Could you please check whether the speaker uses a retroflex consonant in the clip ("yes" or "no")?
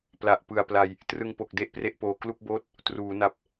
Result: no